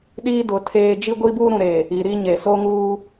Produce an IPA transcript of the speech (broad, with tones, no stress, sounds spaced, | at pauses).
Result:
ɗ iː˦ d ʊ˨˦ tʰ eː˦ d͡ʒ i˦ ɡʷ i˦ b uː˦ ɾ ũ˨ ɾ eː˨ | i˨ ɾ i˦ ɲ e˨ s o˦ ŋ uː˦